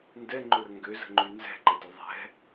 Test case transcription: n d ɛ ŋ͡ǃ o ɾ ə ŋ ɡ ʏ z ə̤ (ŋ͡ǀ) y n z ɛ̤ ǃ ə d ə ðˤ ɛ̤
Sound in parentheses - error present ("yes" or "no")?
yes